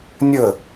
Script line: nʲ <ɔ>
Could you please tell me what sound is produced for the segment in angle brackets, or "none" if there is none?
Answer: ə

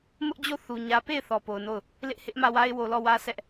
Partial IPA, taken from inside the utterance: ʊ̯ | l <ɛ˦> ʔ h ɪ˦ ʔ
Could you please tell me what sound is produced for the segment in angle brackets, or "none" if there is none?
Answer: ɪ˦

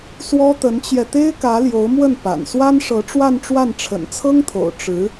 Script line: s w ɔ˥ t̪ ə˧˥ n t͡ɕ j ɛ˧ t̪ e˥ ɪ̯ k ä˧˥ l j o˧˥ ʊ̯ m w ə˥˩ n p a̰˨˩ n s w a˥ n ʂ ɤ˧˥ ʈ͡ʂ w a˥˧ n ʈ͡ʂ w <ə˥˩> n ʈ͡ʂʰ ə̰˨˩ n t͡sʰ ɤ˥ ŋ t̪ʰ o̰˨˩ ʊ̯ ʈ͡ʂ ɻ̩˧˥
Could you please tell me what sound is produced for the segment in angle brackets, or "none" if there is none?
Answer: a˥˩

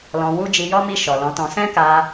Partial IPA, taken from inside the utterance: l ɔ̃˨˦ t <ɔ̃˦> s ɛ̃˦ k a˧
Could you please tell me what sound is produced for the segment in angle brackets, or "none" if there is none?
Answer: ɔ̃˧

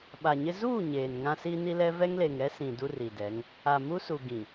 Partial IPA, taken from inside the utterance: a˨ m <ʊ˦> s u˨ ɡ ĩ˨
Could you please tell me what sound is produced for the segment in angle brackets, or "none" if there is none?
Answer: u˦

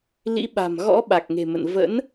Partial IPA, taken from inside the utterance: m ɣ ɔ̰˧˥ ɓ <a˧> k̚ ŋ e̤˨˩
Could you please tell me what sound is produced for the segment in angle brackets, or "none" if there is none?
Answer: a˨˩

